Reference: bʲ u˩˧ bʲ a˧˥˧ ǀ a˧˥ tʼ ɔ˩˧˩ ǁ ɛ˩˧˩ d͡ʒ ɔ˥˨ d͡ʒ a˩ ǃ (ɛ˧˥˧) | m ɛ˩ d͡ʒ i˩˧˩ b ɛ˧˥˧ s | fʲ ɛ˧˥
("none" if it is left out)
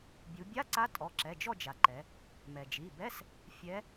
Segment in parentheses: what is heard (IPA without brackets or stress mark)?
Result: ɛ˩˧